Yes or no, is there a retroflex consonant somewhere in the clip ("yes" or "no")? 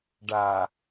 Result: yes